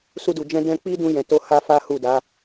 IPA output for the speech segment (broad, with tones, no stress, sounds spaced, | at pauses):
s u˧ d u˨ d͡ʒ ɛ̃˧ d ɛ̃˧ k͡p i˦ d ũ˧ j ɛ̃˨ t o˧ h a˦ f a˦ h u˦˨ d a˨˦